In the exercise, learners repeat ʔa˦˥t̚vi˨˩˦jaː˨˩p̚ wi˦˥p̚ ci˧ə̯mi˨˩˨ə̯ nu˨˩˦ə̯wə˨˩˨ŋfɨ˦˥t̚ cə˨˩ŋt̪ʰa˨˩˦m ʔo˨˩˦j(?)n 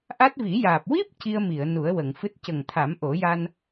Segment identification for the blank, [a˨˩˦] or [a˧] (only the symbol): a˧